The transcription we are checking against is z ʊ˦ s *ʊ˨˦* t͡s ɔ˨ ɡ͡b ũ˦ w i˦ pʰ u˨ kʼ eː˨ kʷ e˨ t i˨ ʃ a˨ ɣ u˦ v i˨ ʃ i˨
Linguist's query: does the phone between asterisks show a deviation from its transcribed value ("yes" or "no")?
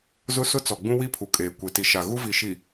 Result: yes